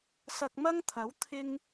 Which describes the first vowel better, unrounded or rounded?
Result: unrounded